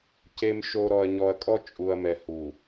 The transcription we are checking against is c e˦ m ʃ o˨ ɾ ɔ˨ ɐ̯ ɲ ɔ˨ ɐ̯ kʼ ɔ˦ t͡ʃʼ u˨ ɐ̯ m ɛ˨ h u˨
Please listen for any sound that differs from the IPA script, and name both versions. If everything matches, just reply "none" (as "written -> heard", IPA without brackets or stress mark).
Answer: e˦ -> e˨